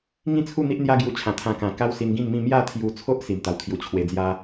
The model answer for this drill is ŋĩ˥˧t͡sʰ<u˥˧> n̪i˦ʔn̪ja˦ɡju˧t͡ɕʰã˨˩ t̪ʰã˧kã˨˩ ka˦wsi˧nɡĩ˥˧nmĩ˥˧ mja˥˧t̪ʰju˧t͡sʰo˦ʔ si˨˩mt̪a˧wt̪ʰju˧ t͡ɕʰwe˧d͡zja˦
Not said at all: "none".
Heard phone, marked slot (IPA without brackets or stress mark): u˥˧